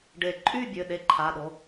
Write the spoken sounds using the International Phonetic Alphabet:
ɖ e˨˩˦ ǃʼ y˥˨ bʲ ø˩˧˩ ɗ e˧˩ ǃʰ a˩˧˩ ɗ o˩˧˩

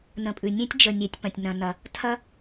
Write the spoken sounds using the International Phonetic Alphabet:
n ə̃˧ pʼ ʉ˨ nʲ ẽ˦ tʲ d͡ʒ ə˨ nʲ e˨ tʲ p ɐ̃˨ tʲ n ɐ̃˨ n ɐ˨ | tʰ ɐ˦

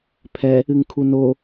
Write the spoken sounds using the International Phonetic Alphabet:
pʰ ɛ | ɨ ŋ kʰ u n o

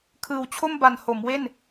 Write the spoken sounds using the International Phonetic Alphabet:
kʰ ɯː˨˩ w t͡ɕʰ o˥˩ m b a˨˩ n h o˩˦ m w e˥˩ n

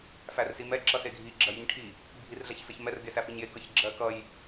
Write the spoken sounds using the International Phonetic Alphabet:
f æ r s i m ɛ ǁ ʌ s e ɡʱ i ɡ͡ǁ ɜ j i ɲ ʈʰ i | bʱ i r ɮ ɛ ç s ʌ ç m ɛ r ɡ e s æ f i ɲ j e k ʌ ç ɡ͡ǁ ɜ k ʌ j

